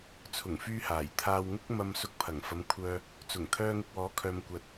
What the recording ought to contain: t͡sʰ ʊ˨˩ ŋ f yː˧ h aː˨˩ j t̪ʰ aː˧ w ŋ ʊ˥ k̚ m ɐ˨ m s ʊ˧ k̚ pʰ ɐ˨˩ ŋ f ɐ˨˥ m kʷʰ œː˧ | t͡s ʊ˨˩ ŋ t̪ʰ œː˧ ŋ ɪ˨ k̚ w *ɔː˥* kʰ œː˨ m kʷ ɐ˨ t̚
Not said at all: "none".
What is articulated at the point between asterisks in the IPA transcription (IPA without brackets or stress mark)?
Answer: ɔː˨˥